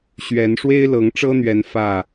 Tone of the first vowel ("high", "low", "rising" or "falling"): rising